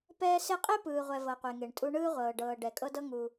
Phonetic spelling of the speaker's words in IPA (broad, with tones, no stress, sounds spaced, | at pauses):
p ɛː˦ s e˥ qʼ e˥ p ɯː˨ ʁʷ ɛ˨ v ɤ˨ qʷ e˨ ŋ e˩ ɳ tʼ u˦ ɳ ɯː˦ ʁʷ ɤː˩ ɖ ɤː˨ ɖ ɛ˩ kʼ ɤ˦ d ɤ˦ ŋ uː˨